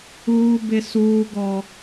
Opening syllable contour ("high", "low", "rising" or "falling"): high